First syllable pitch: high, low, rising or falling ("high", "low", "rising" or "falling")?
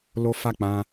high